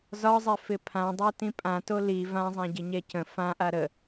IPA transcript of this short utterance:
zɒzˤɛ fɪpʰãdˤa tĩpʼãto li vãzˤãɟɪ ɲɛcə̃ fãʔa ɾə

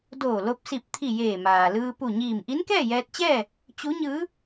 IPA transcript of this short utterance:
doː˧˩lo˧p̚ si˧˩p̚t̪ʰi˧˩ jeː˧˩maː˩lɯː˧ pu˧˩ɲiː˧˩m ʔi˧˥nkɛː˥˨jɛː˧t̚t͡ɕɛː˥˨ | t͡ɕu˧˥ɲɯː˧˥

